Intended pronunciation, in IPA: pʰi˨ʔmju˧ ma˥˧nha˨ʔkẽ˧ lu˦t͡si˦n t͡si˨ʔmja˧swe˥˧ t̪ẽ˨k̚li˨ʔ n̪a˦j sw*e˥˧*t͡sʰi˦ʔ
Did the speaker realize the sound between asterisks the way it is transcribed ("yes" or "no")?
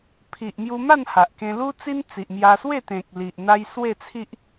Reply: yes